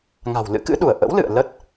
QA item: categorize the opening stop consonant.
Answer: plain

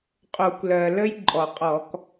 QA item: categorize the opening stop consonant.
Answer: ejective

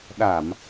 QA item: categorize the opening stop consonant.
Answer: implosive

